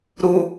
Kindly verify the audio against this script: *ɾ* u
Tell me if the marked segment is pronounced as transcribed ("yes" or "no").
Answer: yes